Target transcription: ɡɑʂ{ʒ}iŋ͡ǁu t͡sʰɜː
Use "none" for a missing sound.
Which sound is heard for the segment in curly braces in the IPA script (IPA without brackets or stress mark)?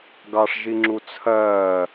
ʒ